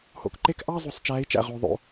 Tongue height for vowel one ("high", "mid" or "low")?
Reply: mid